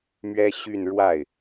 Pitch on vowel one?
high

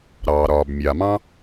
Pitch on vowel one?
low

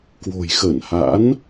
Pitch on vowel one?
low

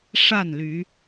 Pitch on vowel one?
falling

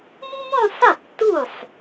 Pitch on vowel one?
falling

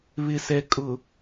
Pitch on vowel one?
low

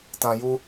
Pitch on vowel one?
low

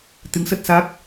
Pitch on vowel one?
rising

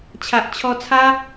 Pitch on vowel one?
low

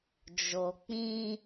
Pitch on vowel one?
low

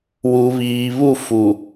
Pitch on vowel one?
low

